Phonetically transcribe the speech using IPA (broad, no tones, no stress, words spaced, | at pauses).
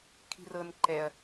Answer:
kʰi̤rɤn ǃɛɐ̯